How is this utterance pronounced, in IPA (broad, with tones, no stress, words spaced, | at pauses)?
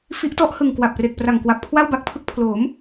fi˦˥ʔtɔ˦˥ʔhɯ˨˩ŋ kwa˨˩p̚re˨˩k̚pra˨˩ŋkwa˨˩p̚ kʰwa˥˩wba˦˥k̚pʰɯ˦˥k̚ pʰloː˩˦m